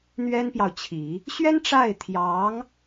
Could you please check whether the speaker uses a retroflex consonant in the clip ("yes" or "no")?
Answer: yes